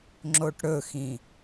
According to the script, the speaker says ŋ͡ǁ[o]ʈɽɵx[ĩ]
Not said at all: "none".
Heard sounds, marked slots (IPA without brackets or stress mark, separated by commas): o, ĩ